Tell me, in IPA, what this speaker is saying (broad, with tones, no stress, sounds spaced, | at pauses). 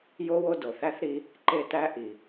j o˥ w o˦ d o˨ θ æ˥ θ ɾ i˦ | ǃ e˥ t̪ æ˥ ʔ i˨